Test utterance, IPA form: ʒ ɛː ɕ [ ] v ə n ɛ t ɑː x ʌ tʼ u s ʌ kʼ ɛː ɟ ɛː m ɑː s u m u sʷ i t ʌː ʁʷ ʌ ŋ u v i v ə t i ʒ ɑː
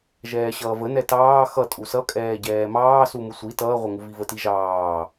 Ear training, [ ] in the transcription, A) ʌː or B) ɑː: A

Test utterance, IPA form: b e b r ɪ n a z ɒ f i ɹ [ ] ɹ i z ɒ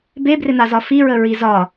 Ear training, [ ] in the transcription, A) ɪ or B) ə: B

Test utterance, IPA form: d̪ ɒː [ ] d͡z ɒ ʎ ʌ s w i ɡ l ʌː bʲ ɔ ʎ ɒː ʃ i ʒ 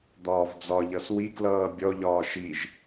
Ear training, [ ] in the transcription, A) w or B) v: B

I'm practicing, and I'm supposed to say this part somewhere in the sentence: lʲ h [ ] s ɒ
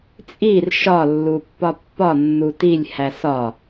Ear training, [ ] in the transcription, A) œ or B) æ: B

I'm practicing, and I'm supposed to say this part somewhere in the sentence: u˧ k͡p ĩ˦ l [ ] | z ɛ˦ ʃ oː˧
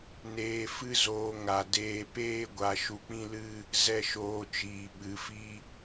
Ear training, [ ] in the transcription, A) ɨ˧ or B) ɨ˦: B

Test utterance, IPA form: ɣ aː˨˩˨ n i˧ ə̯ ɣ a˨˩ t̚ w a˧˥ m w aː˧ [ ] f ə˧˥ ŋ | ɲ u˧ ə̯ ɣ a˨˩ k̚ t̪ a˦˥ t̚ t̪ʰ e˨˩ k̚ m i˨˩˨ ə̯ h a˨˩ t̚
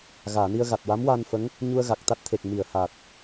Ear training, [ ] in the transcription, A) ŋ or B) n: B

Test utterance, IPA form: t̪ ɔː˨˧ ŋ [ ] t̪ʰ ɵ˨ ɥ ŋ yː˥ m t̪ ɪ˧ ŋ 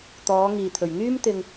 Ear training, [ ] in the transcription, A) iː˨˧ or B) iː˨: B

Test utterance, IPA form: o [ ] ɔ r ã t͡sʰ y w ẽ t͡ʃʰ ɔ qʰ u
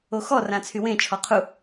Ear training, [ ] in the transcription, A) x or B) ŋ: A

